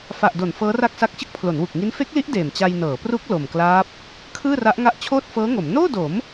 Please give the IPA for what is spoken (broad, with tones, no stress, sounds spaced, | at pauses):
f a˨˩ ʔ d o˩˦ n f ɤː˦˥ r a˥˩ k̚ s a˦˥ k̚ t͡ɕ ɯ˦˥ k̚ pʰ l o˩˦ n w u˨˩ k̚ ŋ i˦˥ n f e˦˥ k̚ l i˦˥ ʔ d eː˨˩ m t͡ɕ a˧ j n ɤː˩˦ p r u˦˥ k̚ l o˨˩ m k l aː˦˥ p̚ | kʰ ɯː˥˩ r a˦˥ ʔ ŋ a˦˥ ʔ t͡ɕʰ oː˥˩ t̚ f ɤː˦˥ ŋ o˩˦ m n oː˥˩ d o˩˦ m